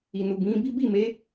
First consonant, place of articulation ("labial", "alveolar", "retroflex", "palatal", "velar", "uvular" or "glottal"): alveolar